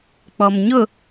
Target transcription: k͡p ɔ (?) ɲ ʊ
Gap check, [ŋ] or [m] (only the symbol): m